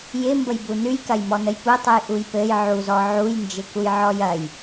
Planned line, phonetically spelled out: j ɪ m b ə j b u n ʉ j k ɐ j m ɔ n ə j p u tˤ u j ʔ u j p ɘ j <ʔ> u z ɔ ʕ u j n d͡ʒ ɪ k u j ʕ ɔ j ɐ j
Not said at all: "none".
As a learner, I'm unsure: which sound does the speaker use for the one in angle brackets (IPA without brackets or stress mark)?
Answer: ʕ